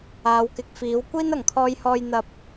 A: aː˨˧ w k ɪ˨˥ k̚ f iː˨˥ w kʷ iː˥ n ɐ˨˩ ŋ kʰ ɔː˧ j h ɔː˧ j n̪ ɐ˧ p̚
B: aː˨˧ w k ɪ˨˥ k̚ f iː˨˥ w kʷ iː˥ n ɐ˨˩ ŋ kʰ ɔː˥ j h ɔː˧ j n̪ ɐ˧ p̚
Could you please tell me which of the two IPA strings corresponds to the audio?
A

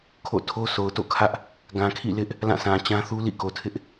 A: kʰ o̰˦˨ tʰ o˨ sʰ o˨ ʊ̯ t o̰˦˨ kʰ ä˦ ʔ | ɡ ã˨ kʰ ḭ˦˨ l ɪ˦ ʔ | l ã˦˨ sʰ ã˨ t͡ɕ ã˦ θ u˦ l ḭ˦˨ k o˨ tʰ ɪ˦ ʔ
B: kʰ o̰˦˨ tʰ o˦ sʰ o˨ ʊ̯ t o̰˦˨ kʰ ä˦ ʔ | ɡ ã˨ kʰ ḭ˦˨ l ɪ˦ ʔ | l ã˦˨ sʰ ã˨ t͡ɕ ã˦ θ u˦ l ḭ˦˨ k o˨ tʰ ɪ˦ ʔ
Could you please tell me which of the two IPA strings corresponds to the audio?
B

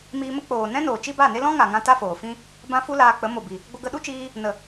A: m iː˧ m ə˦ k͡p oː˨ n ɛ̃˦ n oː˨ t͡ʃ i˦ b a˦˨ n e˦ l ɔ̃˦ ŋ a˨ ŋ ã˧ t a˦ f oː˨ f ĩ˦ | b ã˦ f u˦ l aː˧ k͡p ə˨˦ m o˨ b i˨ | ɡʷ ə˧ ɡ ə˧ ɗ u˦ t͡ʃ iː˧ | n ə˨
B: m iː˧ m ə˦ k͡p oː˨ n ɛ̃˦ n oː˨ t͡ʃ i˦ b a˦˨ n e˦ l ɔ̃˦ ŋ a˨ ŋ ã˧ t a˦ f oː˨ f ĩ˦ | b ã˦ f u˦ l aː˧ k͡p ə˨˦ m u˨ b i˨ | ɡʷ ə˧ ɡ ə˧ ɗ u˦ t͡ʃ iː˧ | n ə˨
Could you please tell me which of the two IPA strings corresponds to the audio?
A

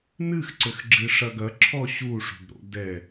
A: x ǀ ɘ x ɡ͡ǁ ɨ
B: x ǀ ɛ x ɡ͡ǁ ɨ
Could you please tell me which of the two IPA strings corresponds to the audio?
A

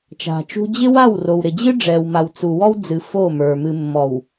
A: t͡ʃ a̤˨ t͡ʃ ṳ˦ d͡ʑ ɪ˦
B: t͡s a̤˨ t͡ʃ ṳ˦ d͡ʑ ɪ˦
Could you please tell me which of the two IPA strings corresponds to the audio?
A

